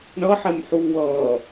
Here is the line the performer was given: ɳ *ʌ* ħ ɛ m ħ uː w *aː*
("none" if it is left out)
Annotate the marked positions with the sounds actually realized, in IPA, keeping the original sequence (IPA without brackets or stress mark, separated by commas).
ʌ, ʌː